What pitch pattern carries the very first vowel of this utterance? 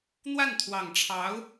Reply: falling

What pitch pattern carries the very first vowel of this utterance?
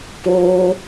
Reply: high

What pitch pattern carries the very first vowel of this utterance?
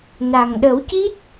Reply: low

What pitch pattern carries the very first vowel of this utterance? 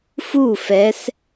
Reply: falling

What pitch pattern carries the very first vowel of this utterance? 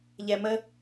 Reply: low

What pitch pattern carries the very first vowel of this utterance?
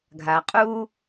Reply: low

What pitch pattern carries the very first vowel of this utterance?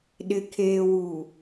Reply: low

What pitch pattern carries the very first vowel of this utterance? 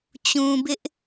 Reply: low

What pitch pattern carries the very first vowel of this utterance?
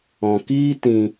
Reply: low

